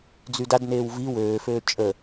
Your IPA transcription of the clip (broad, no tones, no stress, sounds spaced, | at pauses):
d͡z y d a d n eː w v i w øː f øː t͡ʃʼ ə